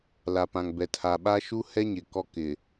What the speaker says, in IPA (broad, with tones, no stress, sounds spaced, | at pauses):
l a˨ p ã˨ ŋ b ɛ˨ tʰ a˨ ɓ a˦ ʃ u˦ h ɛ˦ ɲ ɪ˨ k ɔ˦ k ɪ˨